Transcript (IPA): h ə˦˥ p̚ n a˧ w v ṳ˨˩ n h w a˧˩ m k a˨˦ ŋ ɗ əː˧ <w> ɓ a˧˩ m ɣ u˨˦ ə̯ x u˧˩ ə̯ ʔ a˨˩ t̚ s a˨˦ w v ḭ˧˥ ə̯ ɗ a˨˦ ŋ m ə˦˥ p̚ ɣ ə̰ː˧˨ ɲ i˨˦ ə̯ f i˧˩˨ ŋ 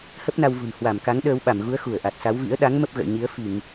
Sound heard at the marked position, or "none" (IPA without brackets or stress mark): w